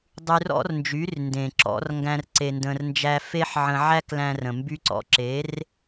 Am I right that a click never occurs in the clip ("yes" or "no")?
no